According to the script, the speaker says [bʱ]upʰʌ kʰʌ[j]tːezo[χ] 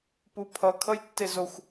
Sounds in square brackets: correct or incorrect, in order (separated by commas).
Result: incorrect, correct, incorrect